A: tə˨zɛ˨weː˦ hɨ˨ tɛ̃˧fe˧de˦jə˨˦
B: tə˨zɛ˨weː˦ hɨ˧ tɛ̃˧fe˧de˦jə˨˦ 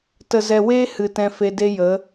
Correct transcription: A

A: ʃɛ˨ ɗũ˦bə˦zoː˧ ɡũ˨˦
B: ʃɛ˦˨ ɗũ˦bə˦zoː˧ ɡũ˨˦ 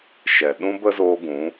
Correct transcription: A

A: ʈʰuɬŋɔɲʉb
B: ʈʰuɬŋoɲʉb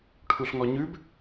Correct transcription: A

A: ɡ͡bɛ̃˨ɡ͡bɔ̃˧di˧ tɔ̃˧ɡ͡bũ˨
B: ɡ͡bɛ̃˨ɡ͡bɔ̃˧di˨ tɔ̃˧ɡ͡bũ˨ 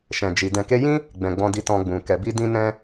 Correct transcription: A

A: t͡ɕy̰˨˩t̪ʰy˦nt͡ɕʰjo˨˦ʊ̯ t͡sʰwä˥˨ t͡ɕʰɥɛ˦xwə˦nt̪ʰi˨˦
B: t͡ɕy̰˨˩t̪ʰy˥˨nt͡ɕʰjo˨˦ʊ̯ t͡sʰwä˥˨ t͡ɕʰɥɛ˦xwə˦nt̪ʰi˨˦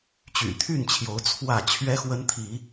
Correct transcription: B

